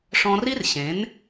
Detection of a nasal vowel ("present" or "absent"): present